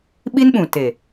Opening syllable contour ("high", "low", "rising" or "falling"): high